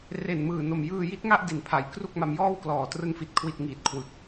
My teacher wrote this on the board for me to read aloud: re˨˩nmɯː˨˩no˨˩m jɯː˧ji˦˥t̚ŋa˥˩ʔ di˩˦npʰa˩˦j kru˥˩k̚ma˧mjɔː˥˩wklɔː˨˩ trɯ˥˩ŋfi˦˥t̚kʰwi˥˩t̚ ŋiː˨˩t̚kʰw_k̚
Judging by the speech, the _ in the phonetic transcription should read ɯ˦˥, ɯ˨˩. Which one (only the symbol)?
ɯ˨˩